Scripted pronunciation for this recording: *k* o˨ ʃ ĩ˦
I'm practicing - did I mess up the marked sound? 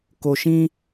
no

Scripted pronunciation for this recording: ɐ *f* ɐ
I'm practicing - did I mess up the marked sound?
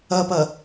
yes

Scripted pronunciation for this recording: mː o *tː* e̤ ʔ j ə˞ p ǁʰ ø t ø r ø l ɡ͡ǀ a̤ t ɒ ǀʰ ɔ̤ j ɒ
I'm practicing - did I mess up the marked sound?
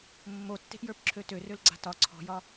no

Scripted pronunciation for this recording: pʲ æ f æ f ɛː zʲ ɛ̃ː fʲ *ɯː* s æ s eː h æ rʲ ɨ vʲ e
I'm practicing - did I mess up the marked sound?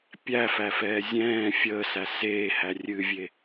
yes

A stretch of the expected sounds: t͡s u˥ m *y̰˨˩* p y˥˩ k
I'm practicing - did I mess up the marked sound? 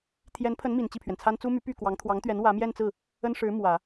yes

